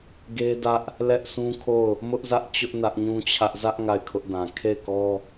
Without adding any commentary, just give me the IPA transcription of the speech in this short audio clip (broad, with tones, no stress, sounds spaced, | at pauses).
ɡ e˦ d ä˦ ʔ | l ɛ˦ ʔ sʰ ũ˦ kʰ o˦˨ ʊ̯ | m ʊ˦ ʔ z ä˦ ʔ t͡ɕ ʊ˦ ʔ n ä˦ ʔ ɲ ũ˦ t͡ɕʰ ä˦ ʔ z ä˦ ʔ ŋ a˦˨ ɪ̯ kʰ ʊ˦ ʔ d ã˨ kʰ e˦˨ ɪ̯ k ɔ˦